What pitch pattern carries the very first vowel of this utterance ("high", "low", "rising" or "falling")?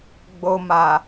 low